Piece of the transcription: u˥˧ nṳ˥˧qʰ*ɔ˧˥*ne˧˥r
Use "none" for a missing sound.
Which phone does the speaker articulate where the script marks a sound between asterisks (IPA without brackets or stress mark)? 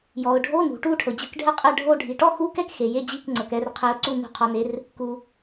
ɔ˧˥